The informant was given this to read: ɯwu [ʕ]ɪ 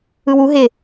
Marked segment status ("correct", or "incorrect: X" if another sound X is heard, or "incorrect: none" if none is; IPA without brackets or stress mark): incorrect: ɦ